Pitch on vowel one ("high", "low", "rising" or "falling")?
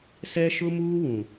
high